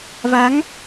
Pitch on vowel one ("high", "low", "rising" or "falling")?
rising